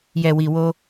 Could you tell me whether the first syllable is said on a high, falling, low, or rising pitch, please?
low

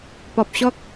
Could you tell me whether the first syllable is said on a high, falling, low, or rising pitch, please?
low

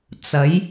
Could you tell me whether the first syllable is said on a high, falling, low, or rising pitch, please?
rising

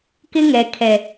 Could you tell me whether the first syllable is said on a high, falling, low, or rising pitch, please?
high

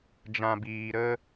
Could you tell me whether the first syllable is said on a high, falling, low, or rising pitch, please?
low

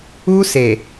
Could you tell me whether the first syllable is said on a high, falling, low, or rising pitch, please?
high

